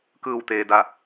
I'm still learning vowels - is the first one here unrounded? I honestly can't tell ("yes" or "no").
yes